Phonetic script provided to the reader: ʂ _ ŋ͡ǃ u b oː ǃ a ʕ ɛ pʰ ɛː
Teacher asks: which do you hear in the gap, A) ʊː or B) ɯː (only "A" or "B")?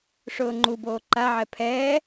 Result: A